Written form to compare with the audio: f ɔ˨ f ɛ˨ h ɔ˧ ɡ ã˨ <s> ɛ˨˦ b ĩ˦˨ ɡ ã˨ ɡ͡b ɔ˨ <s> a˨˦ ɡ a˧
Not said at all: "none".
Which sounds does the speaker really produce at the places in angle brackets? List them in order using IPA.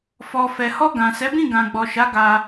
s, ʃ

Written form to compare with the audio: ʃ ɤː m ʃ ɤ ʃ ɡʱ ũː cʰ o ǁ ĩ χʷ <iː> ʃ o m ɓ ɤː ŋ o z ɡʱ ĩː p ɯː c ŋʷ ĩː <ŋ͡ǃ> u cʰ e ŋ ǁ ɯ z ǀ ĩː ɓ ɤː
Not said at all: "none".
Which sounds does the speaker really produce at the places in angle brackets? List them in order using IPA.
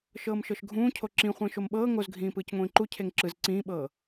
ĩː, ǃ

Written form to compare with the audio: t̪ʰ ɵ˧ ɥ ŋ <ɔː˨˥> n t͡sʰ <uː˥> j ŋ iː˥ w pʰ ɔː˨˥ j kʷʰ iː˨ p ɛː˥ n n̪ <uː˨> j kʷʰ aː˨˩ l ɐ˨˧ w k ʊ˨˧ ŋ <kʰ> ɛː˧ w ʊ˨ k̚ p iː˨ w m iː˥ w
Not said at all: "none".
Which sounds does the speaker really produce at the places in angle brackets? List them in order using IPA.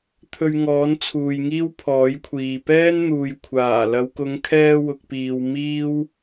ɔː˨˥, uː˨, uː˨, kʰ

